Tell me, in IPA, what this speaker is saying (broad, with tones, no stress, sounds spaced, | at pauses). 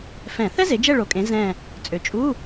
f ɛ̃˧˩˧ θ ɛ˥ z e˨˦ d͡ʒ ɛ˦˨ ɭ o˨˩ kʼ ẽ˨˦ z ɛ̃˦˨ | t͡sʼ ø˨˩ t͡ʃʼ u˧˥˧